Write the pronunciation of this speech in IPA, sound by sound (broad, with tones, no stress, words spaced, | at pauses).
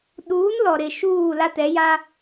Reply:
ɗuː˨˦nlɔ˨ɾɪ˨ ʃuː˦˨la˦tɛ˨˦ ja˦